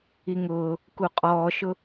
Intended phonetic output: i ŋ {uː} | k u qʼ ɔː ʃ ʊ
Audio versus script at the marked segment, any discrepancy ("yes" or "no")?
yes